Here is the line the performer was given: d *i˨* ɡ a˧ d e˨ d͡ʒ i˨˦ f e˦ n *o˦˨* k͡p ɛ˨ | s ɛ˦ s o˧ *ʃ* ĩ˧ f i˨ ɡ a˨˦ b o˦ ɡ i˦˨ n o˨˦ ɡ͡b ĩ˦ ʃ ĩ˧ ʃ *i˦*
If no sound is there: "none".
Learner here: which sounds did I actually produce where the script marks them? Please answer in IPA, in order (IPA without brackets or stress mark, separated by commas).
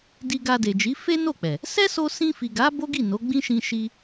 i˧, o˦˨, s, i˦